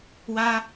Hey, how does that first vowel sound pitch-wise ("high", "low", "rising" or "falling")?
high